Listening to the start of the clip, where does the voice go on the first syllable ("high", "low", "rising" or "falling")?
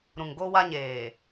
low